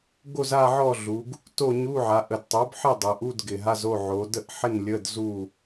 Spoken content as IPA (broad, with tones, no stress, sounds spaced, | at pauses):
ɡ o˥˨ z a˥˨ ʕ ɔ˥˨ ɮ u˩˧ ɡ | t o˥˨ ɲ u˧˥˧ ʕ a˩˧ ʔ ə˨˩ d tˤ o˩˥ b ħ ɪ˥˨ dˤ o˩˧ ʔ u˧˥˧ d ɡ ɪ˨˩ ɦ a˧˥˧ z o˥˨ ʕ o˩˧ d ə˥˨ ʔ ħ ɪ˥˨ n lʲ ə˧˥˧ d z u˥˨